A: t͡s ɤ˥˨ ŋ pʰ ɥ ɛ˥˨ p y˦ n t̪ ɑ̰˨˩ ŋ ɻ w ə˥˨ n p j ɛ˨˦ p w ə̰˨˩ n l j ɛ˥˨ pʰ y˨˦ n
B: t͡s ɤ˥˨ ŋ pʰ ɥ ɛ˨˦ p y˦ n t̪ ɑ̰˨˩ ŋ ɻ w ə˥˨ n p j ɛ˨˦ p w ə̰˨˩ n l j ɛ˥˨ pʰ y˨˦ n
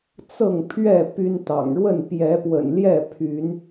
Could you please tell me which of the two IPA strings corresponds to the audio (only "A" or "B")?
A